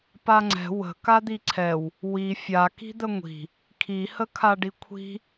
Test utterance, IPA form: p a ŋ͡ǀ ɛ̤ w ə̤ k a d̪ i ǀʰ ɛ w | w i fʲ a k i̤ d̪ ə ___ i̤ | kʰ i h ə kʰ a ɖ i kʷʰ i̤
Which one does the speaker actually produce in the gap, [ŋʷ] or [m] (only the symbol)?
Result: ŋʷ